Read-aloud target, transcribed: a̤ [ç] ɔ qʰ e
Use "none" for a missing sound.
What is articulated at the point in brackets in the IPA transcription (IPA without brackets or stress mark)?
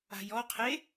j